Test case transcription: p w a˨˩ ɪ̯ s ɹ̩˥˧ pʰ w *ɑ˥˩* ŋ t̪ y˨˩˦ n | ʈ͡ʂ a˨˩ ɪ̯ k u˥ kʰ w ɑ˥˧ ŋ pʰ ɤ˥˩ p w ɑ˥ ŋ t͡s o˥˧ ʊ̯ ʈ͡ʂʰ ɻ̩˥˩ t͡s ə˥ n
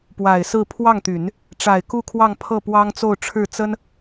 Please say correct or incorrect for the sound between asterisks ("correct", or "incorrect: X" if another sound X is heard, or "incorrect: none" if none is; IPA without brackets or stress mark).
correct